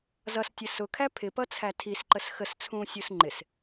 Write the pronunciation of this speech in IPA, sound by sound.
z ʌ s tʲ ə s ʊ kʰ æ pʰ ɪ p ʌ t͡sʰ æ tʰ i s ǃ ə s x ə s t͡sʰ ũː sʲ u s ŋ͡ǃ ɪ s

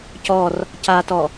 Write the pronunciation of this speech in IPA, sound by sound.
c ɔ r | c a t ɔ

